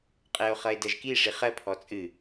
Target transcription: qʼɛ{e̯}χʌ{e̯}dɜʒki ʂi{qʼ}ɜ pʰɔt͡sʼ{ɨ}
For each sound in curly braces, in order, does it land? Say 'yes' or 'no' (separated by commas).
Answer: no, yes, no, yes